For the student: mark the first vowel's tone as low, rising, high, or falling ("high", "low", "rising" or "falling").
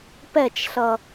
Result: falling